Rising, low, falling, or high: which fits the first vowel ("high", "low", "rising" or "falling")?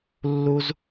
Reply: high